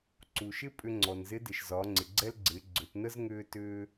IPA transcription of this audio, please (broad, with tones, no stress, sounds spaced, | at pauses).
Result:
ǀ u˩ ʃ ɪ˥ pʼ ʏ˧ ŋ͡ǀ ɔ˩ n z ɪ˧˥ d ɪ˩ ʃ z ɒː˩˧ ŋ͡ǀ ɪ˩ ɡ͡ǀ ɛ˥ l ɡ͡ǀ ɪː˩˧ ɡ͡ǀ ʏ˩˧ t n ə˥ z ŋ ʏː˧ t ʏː˧